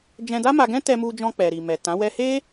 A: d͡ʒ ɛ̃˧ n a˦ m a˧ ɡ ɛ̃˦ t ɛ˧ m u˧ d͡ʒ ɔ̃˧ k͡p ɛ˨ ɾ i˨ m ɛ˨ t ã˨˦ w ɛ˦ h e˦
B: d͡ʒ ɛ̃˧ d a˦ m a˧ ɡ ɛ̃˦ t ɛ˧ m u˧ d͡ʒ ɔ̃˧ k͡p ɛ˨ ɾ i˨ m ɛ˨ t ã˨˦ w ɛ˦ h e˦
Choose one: B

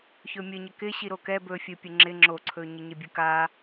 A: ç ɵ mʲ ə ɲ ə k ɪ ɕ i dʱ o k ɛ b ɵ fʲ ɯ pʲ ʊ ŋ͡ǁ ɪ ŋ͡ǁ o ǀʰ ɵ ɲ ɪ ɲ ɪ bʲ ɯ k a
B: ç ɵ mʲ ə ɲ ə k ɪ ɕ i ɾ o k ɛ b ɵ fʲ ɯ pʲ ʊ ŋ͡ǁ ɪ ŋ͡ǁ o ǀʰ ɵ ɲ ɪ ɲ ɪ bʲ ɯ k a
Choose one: B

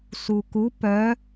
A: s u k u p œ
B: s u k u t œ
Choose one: A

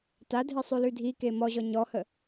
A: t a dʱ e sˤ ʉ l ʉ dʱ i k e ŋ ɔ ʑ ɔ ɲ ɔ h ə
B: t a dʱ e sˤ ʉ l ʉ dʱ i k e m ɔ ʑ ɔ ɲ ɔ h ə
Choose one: B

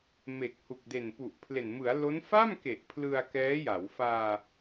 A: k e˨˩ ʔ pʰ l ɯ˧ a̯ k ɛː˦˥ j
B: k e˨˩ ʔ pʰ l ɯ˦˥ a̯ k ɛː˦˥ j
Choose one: A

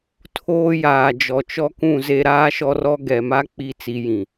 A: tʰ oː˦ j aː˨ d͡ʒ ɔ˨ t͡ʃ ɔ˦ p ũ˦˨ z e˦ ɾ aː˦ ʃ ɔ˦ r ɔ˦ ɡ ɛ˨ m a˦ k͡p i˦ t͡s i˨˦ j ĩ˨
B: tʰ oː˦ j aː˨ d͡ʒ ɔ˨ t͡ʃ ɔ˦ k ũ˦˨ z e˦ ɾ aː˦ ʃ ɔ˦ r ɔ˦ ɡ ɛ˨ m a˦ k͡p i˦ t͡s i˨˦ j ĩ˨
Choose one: B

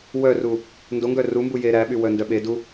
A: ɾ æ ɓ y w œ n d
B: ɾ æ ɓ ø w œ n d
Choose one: A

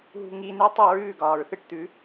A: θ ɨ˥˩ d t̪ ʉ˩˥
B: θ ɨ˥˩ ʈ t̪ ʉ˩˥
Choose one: B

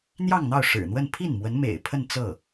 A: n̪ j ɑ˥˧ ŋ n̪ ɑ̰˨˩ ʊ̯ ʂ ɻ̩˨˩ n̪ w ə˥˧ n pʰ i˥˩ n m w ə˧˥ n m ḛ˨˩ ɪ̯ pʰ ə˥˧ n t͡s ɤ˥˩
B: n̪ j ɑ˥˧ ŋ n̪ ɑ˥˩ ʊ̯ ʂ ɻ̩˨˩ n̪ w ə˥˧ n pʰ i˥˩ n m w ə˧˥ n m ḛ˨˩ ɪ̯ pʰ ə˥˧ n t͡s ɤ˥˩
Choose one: B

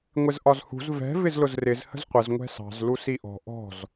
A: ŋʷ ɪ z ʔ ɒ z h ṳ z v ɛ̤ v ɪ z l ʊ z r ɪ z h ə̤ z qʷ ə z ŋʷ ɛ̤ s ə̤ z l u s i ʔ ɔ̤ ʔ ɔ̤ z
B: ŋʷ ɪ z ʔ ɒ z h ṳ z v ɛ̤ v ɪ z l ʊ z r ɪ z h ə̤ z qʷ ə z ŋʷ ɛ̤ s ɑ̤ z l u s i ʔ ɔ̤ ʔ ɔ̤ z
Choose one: B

